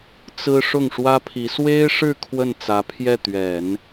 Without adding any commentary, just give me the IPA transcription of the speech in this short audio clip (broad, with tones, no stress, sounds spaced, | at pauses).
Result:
t͡s ɹ̩˥ ʂ ʊ˥˩ ŋ ʂ w ä˥ pʰ i˧˥ s w e˥ ɪ̯ ʂ ɻ̩˥˧ kʰ w ə˥˩ n t͡s ä˧˥ pʰ j ɛ˥˩ t̪ ɥ ɛ˨˩˦ n